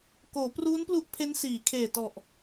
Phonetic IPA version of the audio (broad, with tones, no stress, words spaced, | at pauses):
koː˩˦pruː˦˥nplu˦˥ʔ pʰe˦˥nsiː˩˦kʰeː˨˩tɔ˨˩ʔ